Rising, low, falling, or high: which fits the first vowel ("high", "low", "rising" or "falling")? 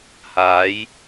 rising